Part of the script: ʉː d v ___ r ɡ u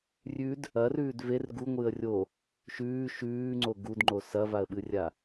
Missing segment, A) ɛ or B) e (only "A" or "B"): B